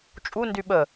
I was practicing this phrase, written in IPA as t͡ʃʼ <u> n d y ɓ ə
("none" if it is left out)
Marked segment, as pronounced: u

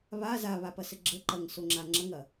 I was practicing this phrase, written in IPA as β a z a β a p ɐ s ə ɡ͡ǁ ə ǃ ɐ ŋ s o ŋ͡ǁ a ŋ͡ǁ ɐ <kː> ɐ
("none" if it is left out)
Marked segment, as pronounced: ŋ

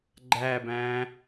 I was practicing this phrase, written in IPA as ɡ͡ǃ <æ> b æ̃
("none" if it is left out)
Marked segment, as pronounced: æ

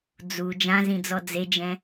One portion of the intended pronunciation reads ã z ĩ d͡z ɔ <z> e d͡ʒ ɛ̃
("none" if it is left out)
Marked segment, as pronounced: d͡z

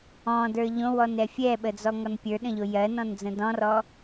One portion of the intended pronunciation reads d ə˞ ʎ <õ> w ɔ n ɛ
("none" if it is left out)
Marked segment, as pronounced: õ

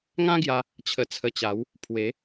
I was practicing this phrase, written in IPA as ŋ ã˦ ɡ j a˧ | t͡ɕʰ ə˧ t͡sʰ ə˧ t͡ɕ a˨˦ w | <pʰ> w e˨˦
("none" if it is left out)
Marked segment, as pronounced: pʰ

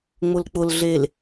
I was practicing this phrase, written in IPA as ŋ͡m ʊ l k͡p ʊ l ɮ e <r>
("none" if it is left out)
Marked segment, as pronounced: l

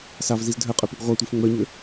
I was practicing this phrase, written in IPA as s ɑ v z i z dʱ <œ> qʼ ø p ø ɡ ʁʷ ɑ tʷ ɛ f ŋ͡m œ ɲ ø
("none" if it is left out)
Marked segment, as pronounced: œ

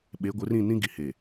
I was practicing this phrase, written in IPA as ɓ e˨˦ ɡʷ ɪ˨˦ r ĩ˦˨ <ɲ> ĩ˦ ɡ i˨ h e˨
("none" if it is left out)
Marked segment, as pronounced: n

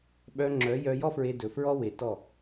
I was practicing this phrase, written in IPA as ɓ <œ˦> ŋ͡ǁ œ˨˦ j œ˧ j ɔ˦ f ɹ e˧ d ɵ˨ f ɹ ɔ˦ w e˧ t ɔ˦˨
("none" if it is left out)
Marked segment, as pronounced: œ˧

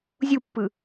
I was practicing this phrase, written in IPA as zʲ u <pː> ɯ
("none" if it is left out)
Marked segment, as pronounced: pː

